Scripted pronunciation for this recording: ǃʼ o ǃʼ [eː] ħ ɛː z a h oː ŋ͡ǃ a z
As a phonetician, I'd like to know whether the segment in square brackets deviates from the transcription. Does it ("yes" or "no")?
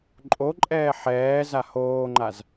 yes